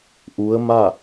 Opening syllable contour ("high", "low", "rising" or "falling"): rising